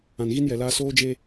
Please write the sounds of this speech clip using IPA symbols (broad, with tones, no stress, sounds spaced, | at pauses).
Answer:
ã˨ n ɣ i˦ n j ɛ˨ l aː˦ s oː˦ d͡ʒ e˦